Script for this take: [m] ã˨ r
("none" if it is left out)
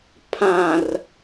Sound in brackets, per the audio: pʰ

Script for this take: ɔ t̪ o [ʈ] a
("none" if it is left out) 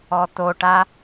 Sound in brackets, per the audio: ʈ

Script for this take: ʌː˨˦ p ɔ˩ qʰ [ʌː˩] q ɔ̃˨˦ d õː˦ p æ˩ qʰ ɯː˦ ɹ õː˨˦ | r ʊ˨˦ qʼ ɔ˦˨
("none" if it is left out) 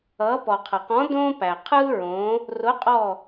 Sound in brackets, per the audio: ʌ˩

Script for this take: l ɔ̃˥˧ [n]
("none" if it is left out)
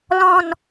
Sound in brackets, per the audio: n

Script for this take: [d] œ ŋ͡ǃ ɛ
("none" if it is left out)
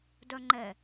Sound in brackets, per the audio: d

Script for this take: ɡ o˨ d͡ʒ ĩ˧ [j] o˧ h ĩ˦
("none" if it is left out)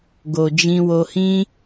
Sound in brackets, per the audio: w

